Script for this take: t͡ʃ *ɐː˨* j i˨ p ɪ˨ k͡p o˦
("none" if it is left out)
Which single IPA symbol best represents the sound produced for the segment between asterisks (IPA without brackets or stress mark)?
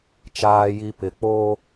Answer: aː˨